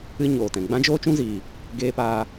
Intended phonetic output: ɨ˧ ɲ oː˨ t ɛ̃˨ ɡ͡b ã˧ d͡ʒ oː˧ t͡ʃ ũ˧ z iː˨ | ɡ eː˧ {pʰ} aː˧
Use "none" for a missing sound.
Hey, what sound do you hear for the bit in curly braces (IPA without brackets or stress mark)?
p